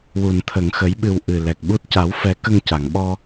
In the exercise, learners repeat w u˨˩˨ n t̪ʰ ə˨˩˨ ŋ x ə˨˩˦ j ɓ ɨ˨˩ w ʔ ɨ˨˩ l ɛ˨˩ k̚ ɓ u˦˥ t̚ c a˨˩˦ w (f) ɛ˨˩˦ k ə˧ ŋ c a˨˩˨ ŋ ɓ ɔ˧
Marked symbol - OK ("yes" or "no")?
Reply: yes